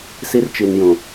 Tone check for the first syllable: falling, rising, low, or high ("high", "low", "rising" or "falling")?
high